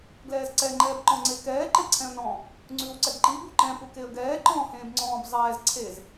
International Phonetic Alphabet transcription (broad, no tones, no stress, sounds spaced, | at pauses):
ɡ l ɛː z ǀ ɛ ŋ͡ǃ ɛː b ǃ ɔ̃ ŋ͡ǀ e k ɛː ǃ e ǀʰ ɛ̃ ə̯ n ɔ̃ | ŋ͡ǀ ʉː w ǀ ɛ ɡ ǃ i b u ǃ ɛ̃ p u k e ə̯ ɡ ɛː ǃ ɔ̃ː h ẽː b ŋ͡ǀ ɔ̃ː b zˤ ɛː z ǀʰ e z